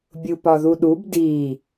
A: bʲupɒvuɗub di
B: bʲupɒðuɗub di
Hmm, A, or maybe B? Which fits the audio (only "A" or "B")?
B